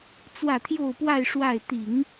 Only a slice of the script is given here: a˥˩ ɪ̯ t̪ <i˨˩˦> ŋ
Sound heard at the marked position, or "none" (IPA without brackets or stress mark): i˨˩˦